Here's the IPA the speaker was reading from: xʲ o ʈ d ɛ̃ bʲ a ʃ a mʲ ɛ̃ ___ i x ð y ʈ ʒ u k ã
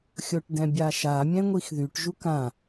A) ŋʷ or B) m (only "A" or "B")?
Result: A